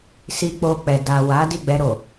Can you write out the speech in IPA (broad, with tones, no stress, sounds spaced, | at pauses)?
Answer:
s i˧ k͡p o˧ k͡p ɛ˨ d a˨ w a˨˦ d i˦˨ ɡ͡b ɛ˧ ɾ o˨